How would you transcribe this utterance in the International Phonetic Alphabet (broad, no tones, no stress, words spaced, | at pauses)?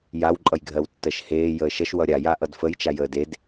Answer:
jaw ǃʼʌjɡʱɜwtːɜʃheː jəːʃʌʃ wʌɾʲa jaʔʌdfəj t͡ʃajəːded